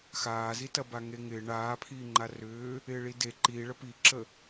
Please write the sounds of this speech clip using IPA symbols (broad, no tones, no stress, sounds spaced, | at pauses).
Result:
x aː z i t ɐ b a ŋ e ŋ ɪː ɳ aː pʰ iː ŋ͡ǃ a r ʏː | ɪː ɭ i d e ǃ iː ɭ ə p i ǁ ə